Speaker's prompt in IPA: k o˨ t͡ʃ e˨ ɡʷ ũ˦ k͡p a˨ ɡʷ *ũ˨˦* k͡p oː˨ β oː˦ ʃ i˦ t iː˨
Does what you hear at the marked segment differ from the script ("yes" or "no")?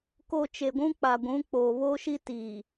no